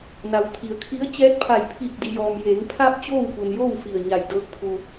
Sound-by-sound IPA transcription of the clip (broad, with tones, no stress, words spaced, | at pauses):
na˩wt̪ʰi˩˧ə̯kʰi˧˥ə̯ t͡ɕɛː˧˥t̚pʰa˧˩jpʰiː˧˩k̚ di˩jɔː˩mjeː˩˧ŋ pʰa˧p̚ t͡ɕoː˥˨wpu˩njoː˥˨w fi˧˩ə̯ɲa˧˩jdɤː˧˥k̚pʰu˧